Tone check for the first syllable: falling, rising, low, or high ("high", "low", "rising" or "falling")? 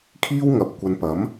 high